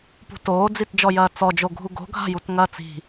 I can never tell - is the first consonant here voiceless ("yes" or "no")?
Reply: yes